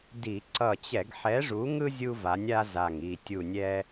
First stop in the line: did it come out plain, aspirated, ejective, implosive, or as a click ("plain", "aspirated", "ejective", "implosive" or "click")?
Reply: plain